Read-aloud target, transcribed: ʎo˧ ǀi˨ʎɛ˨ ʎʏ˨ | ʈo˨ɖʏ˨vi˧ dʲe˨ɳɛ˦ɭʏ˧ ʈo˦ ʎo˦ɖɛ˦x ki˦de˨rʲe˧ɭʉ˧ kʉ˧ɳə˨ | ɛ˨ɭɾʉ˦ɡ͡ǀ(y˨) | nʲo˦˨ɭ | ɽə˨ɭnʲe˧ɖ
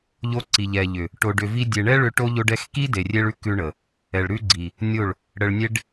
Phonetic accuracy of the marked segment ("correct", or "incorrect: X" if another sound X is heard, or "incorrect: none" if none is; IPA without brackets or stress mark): incorrect: i˨